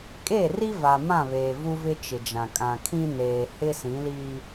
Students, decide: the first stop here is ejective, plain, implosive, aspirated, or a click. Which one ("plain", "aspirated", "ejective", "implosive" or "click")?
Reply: ejective